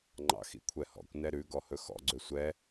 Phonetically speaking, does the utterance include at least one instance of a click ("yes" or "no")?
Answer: yes